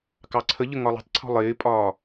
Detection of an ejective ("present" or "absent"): present